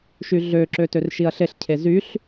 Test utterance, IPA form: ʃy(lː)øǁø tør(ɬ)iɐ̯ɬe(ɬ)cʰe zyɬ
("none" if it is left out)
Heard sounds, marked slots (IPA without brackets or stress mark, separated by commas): ɮ, ʃ, ɬ